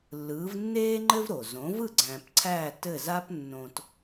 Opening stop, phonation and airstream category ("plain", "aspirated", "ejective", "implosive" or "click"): click